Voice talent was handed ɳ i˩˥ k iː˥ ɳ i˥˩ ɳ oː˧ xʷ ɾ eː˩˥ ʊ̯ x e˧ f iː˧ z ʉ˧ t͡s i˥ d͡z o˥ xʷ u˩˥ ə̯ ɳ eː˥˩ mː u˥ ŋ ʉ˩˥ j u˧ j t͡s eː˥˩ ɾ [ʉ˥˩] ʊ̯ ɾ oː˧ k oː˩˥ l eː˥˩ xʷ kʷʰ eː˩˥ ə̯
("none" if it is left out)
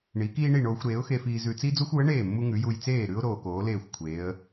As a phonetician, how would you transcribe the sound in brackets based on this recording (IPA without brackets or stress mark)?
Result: ʉ˥